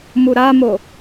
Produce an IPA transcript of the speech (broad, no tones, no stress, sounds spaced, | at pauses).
m u ɾ a m o